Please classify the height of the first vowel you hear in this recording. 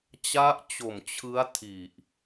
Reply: low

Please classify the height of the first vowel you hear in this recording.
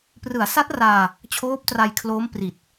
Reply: high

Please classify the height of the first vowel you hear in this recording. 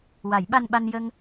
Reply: low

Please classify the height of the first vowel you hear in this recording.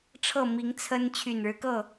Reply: mid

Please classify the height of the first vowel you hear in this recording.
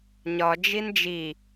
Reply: low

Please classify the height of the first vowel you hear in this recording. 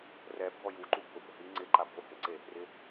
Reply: mid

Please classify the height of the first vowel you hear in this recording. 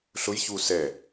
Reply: high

